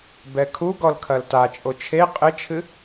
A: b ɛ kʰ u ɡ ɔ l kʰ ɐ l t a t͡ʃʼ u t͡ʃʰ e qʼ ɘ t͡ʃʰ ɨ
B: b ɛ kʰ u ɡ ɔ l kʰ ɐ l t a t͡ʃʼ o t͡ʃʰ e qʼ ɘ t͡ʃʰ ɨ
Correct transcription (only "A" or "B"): B